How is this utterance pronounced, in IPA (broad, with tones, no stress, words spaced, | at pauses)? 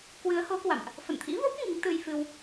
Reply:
kwɨ˨˦ə̯ho˨˦kwa̰˧˨mʔ | fə̰˧˨nt̪ʰḭ˧˥vo˦˥p̚ ŋi˨˦ŋ t̪ɨ˧jfɨ˧w